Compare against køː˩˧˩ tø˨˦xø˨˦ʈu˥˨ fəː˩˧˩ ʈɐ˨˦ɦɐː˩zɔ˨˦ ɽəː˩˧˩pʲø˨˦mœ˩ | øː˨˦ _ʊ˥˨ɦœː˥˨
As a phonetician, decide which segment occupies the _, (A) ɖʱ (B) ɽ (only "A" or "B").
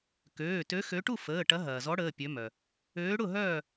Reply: B